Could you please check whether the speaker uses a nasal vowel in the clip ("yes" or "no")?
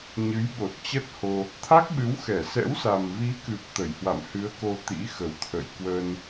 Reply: no